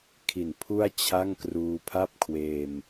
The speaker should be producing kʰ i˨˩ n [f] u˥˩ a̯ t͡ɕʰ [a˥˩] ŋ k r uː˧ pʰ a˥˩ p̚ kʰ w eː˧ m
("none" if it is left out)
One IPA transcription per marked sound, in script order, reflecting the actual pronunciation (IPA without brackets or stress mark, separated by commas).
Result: pʰ, a˥˩